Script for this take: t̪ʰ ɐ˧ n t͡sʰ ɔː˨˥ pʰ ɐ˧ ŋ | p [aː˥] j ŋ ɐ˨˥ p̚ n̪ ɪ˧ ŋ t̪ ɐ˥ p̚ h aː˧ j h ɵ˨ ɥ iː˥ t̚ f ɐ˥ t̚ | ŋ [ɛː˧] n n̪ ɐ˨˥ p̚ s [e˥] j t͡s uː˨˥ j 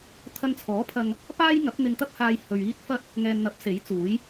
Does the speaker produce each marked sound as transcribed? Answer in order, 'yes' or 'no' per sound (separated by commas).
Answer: yes, no, no